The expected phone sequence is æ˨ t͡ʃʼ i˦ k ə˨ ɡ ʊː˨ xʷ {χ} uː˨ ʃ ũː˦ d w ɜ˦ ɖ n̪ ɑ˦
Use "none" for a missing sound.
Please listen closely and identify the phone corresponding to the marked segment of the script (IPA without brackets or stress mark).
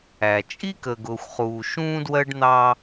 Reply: χ